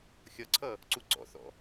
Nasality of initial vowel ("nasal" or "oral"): oral